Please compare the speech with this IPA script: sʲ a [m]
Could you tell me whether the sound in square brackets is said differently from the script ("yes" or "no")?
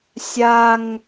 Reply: yes